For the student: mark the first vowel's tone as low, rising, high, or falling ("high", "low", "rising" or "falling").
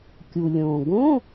low